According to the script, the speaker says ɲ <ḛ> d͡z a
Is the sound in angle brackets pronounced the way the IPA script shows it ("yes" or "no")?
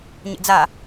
yes